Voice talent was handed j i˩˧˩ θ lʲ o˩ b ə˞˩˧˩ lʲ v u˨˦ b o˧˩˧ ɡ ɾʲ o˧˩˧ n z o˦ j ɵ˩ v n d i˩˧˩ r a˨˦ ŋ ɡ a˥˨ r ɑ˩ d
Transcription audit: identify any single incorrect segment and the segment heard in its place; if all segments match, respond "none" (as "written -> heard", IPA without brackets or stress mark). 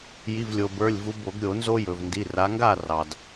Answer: θ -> v